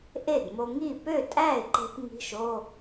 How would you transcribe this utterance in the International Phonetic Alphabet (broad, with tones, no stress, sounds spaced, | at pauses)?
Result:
ʔ e˥˩ d m o˧ ŋ i˥˩ p ø˥˩ tʼ æ˥˩ ɪ̯ ǃ e̤˧ p ŋ i̤˧˥˧ ʃ o˧˥˧